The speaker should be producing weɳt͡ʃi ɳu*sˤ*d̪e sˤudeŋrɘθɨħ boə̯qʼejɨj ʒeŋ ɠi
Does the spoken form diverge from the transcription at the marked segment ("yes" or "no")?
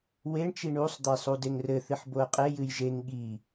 no